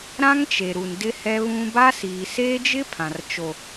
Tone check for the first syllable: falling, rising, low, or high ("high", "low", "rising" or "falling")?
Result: high